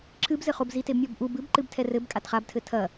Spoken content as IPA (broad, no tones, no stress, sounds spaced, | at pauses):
ǁ ɨ b z ɘ χ o b z i t e b mʲ ɔ b ʔ u b ɨ b ǃ ɨ b tʰ ɛ r ɘ b kʼ a t χ a b tʰ ɘ tʰ ɐ